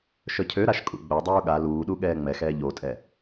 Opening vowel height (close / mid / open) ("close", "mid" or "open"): mid